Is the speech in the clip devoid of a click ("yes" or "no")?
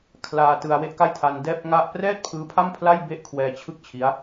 yes